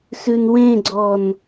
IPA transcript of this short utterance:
sʉnwẽɡ͡ǀɔn

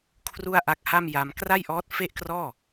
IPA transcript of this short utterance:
kʰru˥˩a̯ʔa˦˥k̚ha˥˩m ja˧mkra˥˩jʔɔː˦˥t̚ fe˥˩ʔkrɔː˥˩

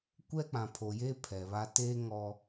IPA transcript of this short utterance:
kʷɛ˦k͡pã˨ pʰo˨jeː˦ pʰɛ˨βa˦ teː˦ ŋɔ˦

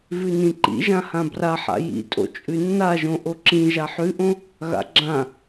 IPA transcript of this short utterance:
vʉnĩǃḭʒã hãbraħa̰ jḭtʼo̰ t͡ʃʼʉnːaʒõ ʔoǁĩ ʒaħʉʔõ | ɣa̰ɡ͡ǁã

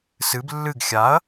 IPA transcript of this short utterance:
sɨb lːɨɡ xʲaɐ̯

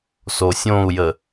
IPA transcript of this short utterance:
sosʲõu̯jə

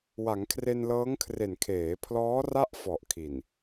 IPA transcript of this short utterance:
wa˩˦ŋkʰre˧nlɤː˦˥ŋkʰre˨˩n kʰeː˩˦pʰlɔː˦˥ ra˥˩ʔfɔ˨˩ʔkʰi˨˩n

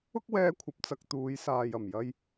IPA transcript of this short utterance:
ʊ˥k̚wɛː˧kʷʰɐ˨p̚ t͡sɐ˧k̚ t̪uː˨˧jsaː˨j ɐ˨˩m jɐ˧j

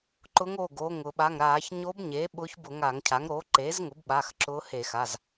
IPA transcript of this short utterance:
ǃʊ˧˥ŋo˩˧˩ɡoː˩˧˩ŋ ʊ˧˩˧ɓa˩˧˩ŋɾaː˧˩˧ç ɲo˧˥bɲe˩˥ ɓʊː˧˥çbʊ˧˩˧ ŋa˧˩˧ŋcʰa˩˥ŋ ɾoː˩˥ǃeː˩˥zŋʊ˩˥bɓaː˩˧˩x ǁʊː˧˥he˧˩˧x a˩˧˩z

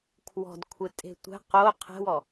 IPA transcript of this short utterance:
kʰwɔ̤dkʷʰɪ tʼe̤tʷɛ̤ qo qʰɛ̤wɔ

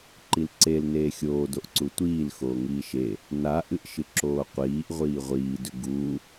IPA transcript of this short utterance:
ǃilǀel neːxʲoː doʔǀutʷiːl xoːŋiːʃe | na ʔɨʔʃɨǁoːqʷiːʔ ʁʷiːʁʷiː dʉɡuː

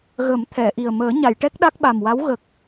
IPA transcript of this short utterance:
ɣə˨˩˦m t̪ʰɛ˨˩˨ʔi˨˩ə̯ məː˨˩˦ɲa˨˩˨jʈɛ˦˥k̚ ɗa˦˥k̚ɓa˨˩mwa˧˥w ɣə˨˩k̚

